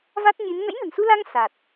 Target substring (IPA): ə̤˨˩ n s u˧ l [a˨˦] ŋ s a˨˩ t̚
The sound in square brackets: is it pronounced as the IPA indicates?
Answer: no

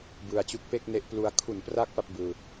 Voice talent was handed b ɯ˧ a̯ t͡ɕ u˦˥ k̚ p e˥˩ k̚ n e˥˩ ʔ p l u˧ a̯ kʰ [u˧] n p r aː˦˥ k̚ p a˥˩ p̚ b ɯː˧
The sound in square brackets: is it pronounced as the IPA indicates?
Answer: no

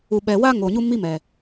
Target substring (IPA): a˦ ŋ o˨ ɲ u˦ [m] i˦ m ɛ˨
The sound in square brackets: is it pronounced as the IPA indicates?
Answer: yes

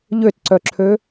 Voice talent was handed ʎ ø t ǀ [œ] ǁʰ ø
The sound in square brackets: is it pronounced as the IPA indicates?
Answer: yes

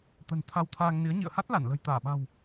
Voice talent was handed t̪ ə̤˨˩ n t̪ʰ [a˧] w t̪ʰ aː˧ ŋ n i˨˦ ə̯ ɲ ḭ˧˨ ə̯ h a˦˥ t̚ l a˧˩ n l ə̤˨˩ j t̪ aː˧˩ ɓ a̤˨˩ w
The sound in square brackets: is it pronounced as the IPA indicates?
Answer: yes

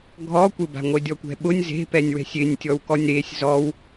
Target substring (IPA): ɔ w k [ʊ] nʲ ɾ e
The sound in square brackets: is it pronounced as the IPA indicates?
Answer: no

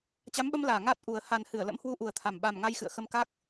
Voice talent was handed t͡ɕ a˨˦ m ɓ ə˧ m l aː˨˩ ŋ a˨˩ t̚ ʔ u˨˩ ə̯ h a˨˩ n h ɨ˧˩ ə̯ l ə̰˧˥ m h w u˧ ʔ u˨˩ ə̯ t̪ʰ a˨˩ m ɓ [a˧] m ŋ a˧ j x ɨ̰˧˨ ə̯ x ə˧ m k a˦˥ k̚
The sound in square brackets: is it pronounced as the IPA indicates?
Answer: no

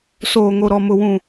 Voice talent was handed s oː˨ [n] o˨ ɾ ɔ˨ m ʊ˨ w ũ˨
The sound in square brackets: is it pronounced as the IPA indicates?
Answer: no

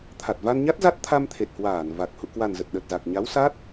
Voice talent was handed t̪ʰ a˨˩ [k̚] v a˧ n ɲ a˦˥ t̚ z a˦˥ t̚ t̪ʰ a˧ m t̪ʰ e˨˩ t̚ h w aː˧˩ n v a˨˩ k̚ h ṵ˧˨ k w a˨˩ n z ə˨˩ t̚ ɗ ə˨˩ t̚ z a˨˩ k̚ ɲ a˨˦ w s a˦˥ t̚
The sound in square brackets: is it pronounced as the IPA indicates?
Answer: no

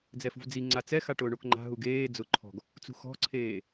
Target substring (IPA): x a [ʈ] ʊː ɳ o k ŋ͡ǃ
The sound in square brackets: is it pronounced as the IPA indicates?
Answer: yes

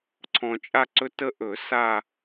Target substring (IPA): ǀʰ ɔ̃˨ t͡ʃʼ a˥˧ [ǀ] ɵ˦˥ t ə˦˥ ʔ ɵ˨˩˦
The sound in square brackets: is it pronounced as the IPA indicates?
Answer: yes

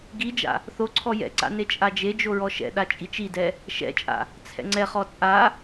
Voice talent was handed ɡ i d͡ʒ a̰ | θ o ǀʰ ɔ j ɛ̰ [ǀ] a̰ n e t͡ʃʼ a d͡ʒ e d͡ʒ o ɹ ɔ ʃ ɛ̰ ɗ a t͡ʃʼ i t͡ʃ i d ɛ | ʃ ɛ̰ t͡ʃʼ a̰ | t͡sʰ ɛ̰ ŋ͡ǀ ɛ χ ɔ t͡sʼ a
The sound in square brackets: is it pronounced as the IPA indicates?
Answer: yes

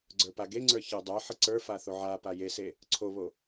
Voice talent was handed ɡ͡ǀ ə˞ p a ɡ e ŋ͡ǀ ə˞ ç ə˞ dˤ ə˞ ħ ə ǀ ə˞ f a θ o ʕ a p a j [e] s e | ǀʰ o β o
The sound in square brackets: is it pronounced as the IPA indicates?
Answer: yes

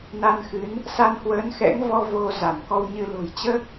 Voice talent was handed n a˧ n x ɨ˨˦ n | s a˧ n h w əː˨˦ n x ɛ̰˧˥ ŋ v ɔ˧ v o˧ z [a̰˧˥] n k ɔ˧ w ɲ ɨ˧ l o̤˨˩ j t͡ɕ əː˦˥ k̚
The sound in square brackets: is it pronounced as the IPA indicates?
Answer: no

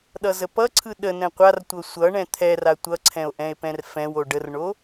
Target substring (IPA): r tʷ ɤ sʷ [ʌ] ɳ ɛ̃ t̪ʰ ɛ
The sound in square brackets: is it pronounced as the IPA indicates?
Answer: yes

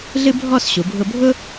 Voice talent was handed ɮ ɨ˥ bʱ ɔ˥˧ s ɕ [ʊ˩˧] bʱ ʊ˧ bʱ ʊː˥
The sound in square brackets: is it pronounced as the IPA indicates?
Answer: no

